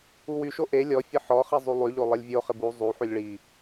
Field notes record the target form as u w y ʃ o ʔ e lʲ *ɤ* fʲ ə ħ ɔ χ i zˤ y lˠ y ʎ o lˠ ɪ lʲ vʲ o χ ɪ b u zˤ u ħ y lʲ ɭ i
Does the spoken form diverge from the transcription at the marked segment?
yes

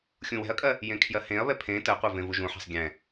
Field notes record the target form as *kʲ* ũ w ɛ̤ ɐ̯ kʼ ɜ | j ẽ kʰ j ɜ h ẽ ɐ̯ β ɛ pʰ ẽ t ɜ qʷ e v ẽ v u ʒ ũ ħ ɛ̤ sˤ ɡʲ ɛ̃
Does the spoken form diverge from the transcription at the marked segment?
yes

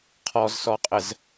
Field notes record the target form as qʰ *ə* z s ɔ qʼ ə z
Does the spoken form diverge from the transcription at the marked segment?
yes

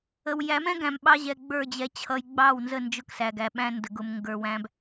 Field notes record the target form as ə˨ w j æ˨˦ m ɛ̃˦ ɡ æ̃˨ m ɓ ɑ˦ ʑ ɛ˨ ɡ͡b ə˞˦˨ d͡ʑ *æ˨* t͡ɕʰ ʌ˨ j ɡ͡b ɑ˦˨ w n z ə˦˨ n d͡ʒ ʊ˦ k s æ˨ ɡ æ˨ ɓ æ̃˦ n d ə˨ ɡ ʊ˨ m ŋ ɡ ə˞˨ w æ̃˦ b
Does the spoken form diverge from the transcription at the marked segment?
yes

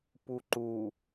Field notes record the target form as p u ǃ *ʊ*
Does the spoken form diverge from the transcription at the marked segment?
yes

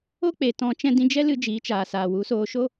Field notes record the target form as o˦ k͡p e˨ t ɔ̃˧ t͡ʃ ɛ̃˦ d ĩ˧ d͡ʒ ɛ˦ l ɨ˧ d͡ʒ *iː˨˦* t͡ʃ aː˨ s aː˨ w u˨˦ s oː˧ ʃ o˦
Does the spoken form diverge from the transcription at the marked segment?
no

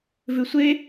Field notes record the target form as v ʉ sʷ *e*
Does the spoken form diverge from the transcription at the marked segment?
no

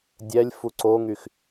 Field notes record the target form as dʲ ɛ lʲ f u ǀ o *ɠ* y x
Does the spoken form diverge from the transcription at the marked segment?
yes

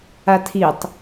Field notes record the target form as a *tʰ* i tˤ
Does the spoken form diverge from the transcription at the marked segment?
no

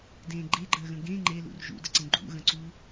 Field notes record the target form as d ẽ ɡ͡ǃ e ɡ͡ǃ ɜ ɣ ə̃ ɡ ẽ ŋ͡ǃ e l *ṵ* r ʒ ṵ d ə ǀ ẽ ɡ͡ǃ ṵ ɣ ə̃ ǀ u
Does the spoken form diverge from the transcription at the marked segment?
no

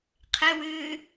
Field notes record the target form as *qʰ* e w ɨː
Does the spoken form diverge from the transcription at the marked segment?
no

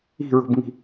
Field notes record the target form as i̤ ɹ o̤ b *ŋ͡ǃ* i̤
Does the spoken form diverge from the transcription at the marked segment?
yes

